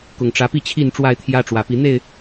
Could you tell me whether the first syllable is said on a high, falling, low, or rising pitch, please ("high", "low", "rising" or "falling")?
low